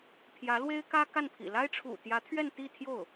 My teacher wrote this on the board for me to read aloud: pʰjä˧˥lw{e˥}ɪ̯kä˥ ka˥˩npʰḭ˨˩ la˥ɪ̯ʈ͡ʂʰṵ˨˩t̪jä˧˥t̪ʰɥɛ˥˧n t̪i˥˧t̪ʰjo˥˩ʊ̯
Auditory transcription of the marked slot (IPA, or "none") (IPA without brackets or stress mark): e˥